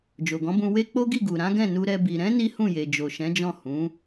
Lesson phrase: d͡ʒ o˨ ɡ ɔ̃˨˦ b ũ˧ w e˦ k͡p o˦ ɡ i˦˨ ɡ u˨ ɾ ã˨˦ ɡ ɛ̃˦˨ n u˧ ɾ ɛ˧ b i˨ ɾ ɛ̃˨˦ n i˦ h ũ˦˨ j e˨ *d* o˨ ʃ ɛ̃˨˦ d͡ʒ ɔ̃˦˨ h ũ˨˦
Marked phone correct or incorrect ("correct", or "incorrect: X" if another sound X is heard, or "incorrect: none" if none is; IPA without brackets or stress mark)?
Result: incorrect: d͡ʒ